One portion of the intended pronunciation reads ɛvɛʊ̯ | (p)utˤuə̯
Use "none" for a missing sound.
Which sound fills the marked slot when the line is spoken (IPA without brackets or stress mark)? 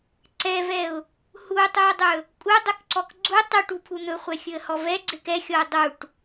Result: h